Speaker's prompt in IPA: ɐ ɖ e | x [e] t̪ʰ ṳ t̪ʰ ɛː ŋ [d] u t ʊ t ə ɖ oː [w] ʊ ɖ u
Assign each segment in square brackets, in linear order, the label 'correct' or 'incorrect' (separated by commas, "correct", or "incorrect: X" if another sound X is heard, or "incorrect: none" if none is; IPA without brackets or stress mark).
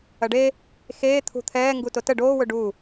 incorrect: eː, incorrect: ɡ, correct